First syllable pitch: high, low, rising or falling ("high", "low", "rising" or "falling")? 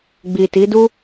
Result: low